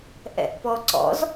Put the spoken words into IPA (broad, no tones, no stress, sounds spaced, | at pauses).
ʔ ɛ̰ ʔ p ɔ ǀ ɔ̰ z